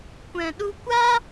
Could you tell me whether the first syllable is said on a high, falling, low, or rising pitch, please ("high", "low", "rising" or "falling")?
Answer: low